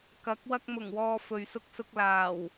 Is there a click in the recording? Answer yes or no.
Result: no